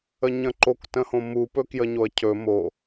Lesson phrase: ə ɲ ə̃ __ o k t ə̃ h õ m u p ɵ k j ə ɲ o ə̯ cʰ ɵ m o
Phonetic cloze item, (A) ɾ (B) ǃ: B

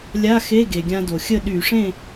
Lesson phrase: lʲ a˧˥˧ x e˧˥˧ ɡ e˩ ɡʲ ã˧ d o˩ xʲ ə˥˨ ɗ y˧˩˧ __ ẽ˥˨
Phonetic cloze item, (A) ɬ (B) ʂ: B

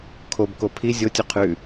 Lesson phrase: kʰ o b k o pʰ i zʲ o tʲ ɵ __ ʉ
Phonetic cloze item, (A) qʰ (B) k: A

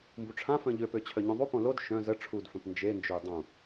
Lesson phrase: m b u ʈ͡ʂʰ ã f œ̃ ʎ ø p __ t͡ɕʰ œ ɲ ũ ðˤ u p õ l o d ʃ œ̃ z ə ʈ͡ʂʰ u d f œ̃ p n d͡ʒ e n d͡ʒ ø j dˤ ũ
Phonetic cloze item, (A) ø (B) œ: A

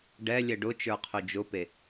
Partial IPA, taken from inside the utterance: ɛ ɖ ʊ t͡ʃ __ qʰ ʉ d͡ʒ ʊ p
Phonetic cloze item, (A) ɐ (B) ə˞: B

